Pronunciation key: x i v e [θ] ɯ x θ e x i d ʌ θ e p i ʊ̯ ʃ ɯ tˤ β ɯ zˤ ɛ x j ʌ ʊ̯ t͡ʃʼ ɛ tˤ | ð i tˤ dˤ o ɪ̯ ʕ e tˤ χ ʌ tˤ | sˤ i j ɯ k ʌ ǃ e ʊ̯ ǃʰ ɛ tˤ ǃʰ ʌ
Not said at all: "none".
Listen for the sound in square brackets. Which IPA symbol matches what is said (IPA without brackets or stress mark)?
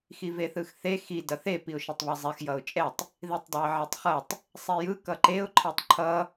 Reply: θ